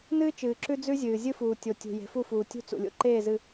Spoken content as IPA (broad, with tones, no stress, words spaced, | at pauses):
nɨː˦t͡ʃɨː˨ ǁʉ˦d͡zʉ˦zʲɨː˨ zʲɨ˦fuː˨ tʲo˨tʲṳ˨ je̤˨˦fu˦˨fuː˨ tʲṳ˦t͡sṵ˨lʲo̰˦ ǃeː˦˨zɨ˨